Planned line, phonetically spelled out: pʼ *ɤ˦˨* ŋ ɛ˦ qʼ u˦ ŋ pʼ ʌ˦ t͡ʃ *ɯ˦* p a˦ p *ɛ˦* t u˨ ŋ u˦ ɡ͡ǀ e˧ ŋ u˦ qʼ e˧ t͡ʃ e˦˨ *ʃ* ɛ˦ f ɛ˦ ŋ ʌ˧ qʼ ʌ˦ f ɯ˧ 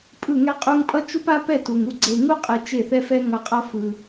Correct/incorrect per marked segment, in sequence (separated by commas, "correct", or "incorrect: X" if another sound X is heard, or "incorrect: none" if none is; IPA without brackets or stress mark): incorrect: ɯ˦˨, incorrect: u˦, incorrect: ɛ˦˨, incorrect: θ